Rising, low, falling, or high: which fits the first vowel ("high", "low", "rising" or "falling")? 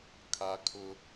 high